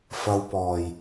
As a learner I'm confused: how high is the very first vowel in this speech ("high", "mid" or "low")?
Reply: low